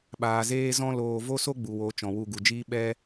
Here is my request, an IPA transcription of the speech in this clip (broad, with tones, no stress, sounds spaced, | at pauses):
ɓ aː˨ z eː˦ z ɔ̃˦ l oː˧ v o˦ s o˦ ɡ͡b u˨ w o˨˦ t͡ʃ ɔ̃˨ w u˧ ɡ u˨ d͡ʒ iː˦ ɓ ɛ˦